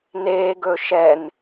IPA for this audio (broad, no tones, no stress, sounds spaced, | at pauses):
n e ɡ ɵ ʃ ɛ n